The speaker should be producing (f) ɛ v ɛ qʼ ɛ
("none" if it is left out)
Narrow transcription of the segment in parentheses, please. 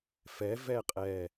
f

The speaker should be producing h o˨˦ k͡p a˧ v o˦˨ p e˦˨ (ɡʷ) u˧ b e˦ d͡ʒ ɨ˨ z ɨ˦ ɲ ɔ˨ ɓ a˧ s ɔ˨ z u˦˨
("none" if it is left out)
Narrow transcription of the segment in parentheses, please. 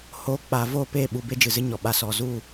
ɓ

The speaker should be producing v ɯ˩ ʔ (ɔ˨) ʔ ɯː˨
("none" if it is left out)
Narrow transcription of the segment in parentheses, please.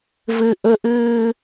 ʊ˨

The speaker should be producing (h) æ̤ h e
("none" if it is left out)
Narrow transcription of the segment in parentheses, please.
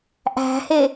ʔ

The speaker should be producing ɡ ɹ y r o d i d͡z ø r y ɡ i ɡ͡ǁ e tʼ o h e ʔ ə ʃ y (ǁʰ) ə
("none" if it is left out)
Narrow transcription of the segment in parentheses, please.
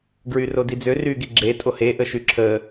ǁʰ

